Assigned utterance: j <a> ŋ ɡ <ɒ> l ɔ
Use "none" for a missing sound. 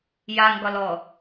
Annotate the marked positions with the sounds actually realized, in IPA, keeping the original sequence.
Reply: a, ɒ

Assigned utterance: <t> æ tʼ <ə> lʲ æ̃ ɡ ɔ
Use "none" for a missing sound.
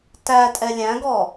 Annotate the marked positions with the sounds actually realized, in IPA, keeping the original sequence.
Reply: t, ɛ

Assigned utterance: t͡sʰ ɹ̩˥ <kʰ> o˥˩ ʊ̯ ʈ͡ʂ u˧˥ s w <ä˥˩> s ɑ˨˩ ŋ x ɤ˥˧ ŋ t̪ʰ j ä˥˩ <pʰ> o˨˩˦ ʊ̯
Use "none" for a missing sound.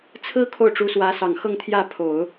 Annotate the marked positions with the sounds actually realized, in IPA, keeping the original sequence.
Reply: kʰ, ä˧˥, pʰ

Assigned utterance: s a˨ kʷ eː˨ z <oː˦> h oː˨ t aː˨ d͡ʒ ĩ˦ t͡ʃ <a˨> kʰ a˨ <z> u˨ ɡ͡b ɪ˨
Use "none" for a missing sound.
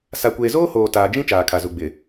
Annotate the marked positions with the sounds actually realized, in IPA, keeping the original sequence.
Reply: oː˦, aː˨, z

